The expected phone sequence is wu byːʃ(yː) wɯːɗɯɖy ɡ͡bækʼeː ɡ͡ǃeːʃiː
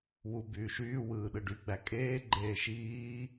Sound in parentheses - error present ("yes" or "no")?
no